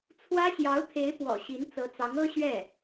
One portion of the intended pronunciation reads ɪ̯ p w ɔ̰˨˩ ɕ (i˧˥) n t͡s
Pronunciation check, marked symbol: correct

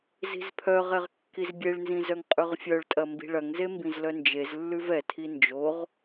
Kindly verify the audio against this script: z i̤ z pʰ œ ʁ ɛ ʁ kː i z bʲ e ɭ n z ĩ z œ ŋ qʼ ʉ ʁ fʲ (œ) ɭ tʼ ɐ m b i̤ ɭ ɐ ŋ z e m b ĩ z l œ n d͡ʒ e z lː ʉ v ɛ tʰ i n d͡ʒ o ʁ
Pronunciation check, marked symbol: correct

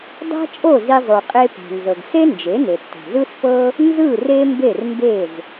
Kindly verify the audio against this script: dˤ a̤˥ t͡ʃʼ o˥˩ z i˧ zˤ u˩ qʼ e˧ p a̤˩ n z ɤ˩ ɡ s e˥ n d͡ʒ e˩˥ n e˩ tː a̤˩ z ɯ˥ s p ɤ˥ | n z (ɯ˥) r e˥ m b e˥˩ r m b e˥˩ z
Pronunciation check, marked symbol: incorrect: ɯ˥˩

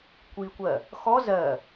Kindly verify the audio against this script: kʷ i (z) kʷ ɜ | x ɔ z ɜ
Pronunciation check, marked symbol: incorrect: none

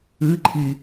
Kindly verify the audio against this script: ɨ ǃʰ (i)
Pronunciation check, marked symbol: correct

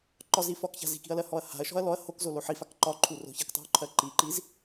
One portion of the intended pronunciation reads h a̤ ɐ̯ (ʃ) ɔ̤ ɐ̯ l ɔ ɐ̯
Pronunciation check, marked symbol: correct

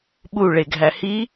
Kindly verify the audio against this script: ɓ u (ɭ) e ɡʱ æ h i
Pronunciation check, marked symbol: correct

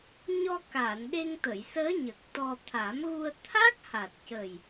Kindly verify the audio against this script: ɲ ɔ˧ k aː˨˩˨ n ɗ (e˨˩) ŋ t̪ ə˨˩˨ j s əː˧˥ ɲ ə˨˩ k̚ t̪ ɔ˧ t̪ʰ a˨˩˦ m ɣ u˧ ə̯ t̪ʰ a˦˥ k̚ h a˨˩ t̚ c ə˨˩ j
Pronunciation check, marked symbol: incorrect: e˧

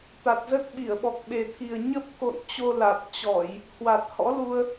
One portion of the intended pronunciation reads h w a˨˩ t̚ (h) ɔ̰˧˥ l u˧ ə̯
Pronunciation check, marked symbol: correct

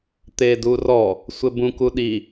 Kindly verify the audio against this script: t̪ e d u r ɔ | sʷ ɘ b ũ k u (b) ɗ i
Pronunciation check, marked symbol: incorrect: none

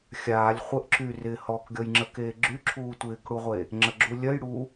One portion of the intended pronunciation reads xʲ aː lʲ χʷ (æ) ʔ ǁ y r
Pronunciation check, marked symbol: incorrect: ə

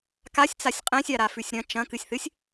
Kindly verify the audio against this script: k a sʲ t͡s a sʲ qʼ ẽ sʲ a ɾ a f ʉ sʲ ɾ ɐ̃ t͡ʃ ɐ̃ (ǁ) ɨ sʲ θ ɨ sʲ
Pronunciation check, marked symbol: incorrect: k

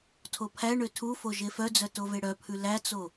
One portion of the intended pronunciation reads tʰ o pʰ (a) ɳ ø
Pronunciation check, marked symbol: incorrect: æ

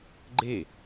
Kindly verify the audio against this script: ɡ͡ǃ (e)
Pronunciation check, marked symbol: correct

